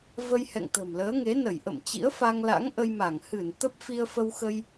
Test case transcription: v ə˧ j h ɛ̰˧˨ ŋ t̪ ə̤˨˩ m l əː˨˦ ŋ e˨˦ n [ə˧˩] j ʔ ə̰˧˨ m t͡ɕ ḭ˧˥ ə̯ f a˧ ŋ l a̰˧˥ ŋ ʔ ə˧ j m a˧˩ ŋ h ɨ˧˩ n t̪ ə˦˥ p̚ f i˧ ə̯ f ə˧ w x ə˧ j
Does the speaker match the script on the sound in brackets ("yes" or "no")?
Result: yes